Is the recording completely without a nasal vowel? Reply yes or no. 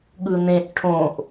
no